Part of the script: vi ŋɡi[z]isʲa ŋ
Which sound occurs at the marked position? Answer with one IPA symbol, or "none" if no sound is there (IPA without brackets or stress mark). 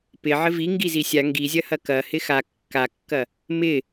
z